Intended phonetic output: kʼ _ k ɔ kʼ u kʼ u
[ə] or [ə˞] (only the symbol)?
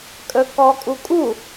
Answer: ə